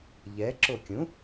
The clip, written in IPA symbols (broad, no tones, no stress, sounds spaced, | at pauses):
ʎ ɛ ǁ o kʲ ũ